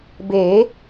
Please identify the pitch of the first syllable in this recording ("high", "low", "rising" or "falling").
rising